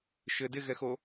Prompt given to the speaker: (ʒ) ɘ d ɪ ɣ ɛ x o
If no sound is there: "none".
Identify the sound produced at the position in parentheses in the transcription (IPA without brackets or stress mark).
ʃ